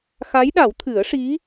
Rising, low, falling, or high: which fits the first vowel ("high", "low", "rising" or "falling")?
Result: rising